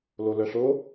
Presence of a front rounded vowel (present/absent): present